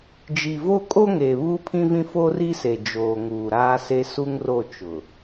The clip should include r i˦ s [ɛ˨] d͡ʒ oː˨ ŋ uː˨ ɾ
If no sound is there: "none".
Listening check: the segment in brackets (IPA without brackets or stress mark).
e˨